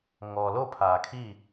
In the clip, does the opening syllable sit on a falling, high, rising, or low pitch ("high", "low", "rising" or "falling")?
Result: low